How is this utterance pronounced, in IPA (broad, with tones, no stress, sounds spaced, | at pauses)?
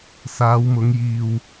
s aː˨˧ w m ʊ˨˧ ŋ j iː˨ w